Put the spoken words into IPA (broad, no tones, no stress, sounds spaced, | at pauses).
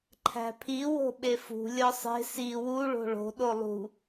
ǃʰ æ̤ pʰ i w o̤ ɓ e f ṳ lʲ ɒ sˤ e̤ s i w u ɭ o̤ ɭ o̤ ɗ o lˠ ṳ